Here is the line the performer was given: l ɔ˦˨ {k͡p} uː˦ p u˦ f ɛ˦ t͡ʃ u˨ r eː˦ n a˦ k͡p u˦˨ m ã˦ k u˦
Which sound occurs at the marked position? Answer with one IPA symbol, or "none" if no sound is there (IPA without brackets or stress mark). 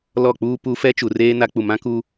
k͡p